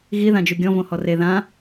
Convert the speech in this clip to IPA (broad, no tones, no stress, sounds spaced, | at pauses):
ɣ i ð ã d͡ʒ u ɡʲ ɔ̃ v õ h ɔ r e ð ã